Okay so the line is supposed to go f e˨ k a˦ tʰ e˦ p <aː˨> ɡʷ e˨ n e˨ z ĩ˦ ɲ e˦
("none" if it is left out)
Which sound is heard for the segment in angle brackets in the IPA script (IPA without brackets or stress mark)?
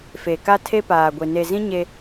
aː˨